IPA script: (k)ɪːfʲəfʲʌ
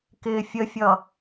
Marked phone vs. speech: correct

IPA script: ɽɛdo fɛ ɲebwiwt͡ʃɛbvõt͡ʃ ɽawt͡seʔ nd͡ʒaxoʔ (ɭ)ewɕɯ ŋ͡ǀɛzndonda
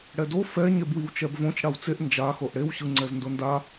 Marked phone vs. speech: incorrect: ɽ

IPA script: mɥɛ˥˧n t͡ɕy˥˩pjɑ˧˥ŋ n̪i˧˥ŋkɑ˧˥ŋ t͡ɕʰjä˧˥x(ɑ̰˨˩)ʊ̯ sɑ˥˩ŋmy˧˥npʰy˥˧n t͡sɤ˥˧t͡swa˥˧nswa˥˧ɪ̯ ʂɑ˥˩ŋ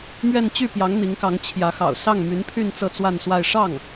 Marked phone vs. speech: correct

